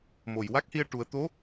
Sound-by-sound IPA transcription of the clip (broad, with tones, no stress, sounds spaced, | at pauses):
m o˨˩˨ j w a˦˥ k̚ h i˧ ə̯ ʈ u˨˩˦ ə̯ t̪ o˧˥